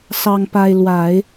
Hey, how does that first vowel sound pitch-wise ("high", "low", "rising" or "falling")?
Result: high